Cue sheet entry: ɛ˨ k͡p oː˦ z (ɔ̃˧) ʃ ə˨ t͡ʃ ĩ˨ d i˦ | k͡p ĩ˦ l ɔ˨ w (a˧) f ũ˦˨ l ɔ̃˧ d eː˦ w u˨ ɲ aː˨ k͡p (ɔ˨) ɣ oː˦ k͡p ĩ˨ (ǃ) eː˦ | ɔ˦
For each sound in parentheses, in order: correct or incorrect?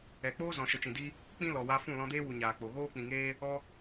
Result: incorrect, correct, incorrect, incorrect

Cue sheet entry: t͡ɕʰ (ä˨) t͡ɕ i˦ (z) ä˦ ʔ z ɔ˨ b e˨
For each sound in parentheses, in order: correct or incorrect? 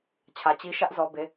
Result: correct, incorrect

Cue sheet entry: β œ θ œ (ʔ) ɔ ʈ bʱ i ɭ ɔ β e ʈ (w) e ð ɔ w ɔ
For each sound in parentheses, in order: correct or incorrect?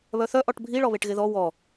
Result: correct, incorrect

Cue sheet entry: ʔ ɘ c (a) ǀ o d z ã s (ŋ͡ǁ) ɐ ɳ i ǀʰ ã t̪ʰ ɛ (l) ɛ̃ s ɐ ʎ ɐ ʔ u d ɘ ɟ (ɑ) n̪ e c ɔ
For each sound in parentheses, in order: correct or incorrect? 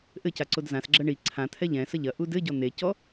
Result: correct, incorrect, incorrect, incorrect

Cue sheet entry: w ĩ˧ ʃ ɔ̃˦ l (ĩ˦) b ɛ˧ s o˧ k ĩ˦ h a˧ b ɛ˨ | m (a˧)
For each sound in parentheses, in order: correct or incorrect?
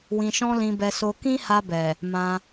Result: incorrect, incorrect

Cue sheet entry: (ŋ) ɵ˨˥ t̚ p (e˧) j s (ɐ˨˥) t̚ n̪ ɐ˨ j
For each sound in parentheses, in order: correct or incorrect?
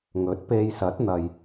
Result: correct, correct, correct

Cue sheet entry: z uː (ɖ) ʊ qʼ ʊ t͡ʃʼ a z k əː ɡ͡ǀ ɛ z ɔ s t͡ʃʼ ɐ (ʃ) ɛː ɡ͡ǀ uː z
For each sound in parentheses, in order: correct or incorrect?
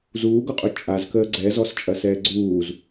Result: incorrect, incorrect

